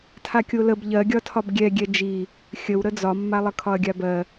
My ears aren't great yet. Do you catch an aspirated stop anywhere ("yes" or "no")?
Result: yes